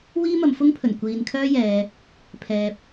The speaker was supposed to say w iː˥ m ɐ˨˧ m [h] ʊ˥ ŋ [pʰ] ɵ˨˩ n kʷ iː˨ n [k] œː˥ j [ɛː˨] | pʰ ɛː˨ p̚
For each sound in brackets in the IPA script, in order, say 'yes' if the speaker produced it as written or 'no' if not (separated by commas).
no, yes, no, yes